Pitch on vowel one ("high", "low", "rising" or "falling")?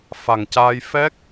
low